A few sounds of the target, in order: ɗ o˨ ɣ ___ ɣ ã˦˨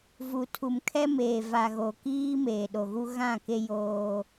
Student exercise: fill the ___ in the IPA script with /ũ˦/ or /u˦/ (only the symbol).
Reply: u˦